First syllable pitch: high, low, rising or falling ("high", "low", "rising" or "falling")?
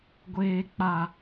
low